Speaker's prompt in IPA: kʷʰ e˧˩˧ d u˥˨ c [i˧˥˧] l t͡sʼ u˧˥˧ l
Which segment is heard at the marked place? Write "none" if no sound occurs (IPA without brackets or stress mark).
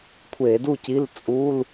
i˧˥˧